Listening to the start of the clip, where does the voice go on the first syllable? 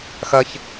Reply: low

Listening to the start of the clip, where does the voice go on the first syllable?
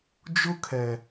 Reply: high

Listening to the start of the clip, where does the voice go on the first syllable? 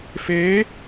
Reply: rising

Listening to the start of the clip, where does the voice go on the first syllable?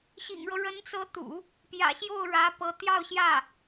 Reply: low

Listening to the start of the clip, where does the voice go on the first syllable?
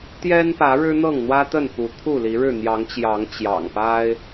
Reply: high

